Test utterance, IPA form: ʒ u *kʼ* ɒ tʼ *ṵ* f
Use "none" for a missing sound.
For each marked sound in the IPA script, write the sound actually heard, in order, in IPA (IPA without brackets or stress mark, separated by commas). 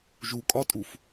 kʼ, u